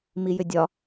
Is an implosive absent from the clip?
yes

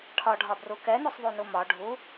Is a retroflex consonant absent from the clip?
no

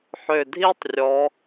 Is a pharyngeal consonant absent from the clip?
no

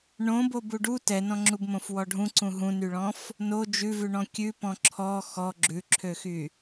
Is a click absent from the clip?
no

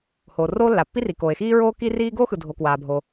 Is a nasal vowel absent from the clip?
yes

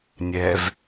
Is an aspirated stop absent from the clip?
yes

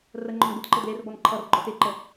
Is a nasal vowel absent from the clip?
yes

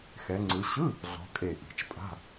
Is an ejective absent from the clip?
no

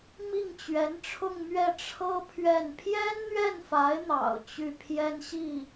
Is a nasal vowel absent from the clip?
yes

